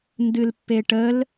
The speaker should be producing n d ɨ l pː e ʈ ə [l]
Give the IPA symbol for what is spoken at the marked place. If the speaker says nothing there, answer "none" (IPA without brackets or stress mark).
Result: l